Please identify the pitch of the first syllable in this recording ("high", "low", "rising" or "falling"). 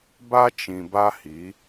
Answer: high